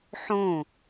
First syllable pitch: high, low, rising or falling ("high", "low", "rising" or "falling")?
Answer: falling